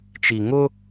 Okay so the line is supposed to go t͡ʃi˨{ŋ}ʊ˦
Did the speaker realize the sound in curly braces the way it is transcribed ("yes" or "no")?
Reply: yes